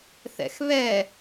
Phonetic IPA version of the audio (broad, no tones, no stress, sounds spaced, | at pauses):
θ ɛ̰ x β ɛ